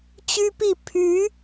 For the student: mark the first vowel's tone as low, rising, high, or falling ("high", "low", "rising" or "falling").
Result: high